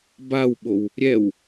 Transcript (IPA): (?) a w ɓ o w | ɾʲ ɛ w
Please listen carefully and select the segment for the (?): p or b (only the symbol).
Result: b